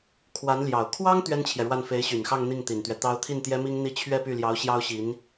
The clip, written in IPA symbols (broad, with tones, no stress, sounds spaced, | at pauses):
kʰ w a˧˥ n l j ɑ˨˩ ʊ̯ kʰ w ɑ˥ ŋ t̪ ɥ ɛ˥ n t͡ɕʰ j ɛ˨ ɻ w a˥˩ n f e˧˥ ɪ̯ ɕ y˨˩ n x ɑ˥˧ ŋ n̪ i˥˩ ŋ t̪ i˨˩ n t̪ ɥ ɛ˦ t̪ ɑ˧˥ ʊ̯ t̪ʰ i˥˩ n t̪ j ɛ˥ m i˥ ŋ n̪ i˥˧ t͡ɕʰ ɥ ɛ˥˧ p y˥˩ l j ɑ˧˥ ʊ̯ ɕ j ɑ˥ ʊ̯ ɕ i˧˥ n